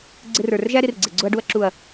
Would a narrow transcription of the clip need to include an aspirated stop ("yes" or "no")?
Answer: no